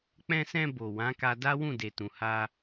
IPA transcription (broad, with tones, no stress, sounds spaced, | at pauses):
k͡p ɛ̃˧ s ɛ̃˧ b o˨ w ã˨˦ k a˧ d a˦ w ũ˦˨ d e˨ t ũ˨ h a˧